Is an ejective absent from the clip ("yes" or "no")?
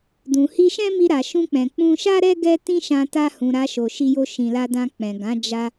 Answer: yes